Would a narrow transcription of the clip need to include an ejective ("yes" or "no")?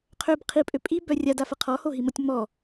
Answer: yes